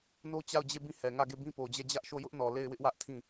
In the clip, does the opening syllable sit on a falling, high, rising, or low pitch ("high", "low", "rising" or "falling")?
high